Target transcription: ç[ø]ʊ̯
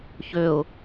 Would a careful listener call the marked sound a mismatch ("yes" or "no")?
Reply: no